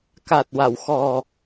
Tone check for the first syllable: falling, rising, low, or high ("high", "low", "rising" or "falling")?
low